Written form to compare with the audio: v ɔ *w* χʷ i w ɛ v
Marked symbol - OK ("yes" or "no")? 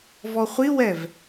no